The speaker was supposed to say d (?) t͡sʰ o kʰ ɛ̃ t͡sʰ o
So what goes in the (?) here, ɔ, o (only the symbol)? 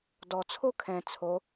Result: ɔ